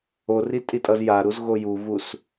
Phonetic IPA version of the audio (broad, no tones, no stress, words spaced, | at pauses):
ori tʼitʼʌzjaɾuz ɣojuvus